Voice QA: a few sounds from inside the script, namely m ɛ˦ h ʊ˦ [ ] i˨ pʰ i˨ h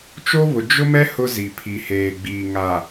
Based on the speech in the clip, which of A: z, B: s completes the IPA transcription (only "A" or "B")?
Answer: A